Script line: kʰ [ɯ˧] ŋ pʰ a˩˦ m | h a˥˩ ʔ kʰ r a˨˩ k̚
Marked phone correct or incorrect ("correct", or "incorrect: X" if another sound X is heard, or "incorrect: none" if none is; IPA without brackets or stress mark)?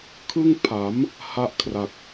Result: incorrect: ɯ˥˩